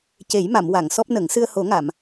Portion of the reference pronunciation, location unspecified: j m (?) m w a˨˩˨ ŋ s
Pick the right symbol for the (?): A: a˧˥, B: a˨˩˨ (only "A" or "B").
B